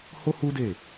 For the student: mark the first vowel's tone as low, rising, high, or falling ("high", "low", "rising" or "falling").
high